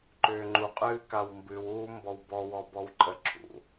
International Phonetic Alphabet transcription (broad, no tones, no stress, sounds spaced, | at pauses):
ǃ ʏː ŋ͡ǃ u qʼ ɨː k a w m b ɨ w uː m b ɔ w b ɔ w ɔ b ɔ w ǃʼ ə ǁʰ ṵ